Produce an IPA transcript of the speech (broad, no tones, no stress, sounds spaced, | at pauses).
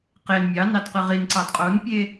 q e n mʲ ɑ n ɑ d q ɨ ʁ i n ǀ ɑ d qʼ o n pʲ e